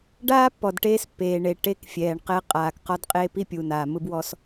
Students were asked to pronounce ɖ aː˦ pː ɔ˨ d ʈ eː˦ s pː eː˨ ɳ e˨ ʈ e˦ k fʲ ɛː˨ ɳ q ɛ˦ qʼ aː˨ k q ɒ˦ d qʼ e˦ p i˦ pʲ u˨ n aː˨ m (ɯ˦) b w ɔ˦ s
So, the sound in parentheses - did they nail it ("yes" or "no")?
yes